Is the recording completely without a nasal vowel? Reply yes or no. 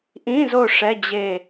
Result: no